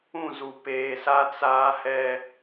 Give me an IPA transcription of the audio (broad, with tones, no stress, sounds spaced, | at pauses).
ũ˦˨ z u˨ p eː˨ s a˦ t͡s aː˦ h ɛ˦